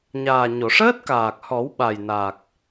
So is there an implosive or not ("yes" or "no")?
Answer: yes